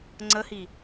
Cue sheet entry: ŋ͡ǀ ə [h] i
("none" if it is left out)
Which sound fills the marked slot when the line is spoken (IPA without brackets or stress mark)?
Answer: h